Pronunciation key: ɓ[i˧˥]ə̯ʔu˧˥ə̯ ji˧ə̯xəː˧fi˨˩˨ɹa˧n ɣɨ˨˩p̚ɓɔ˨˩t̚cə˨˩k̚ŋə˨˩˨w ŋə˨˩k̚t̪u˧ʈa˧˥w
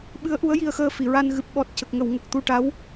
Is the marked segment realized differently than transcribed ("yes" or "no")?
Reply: yes